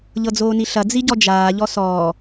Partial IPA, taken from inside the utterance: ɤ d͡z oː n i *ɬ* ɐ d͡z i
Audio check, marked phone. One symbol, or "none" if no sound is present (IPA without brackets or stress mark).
ɬ